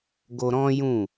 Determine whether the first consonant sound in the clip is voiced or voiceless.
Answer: voiced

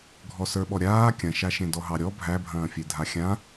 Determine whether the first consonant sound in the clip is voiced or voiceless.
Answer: voiced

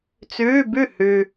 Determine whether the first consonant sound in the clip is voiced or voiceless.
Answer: voiceless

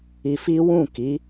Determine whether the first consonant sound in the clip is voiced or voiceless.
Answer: voiceless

